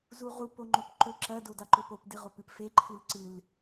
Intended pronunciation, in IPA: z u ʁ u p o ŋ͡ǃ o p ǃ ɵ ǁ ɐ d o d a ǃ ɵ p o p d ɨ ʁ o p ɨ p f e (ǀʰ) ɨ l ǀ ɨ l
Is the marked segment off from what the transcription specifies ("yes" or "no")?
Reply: yes